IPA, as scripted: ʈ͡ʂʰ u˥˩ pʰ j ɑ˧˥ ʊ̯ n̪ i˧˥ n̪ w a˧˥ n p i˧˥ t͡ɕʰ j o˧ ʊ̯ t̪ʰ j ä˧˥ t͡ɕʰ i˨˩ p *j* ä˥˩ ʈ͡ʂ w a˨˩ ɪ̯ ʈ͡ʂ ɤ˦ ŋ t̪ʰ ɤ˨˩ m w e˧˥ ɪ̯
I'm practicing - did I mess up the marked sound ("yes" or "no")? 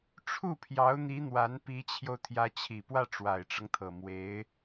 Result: yes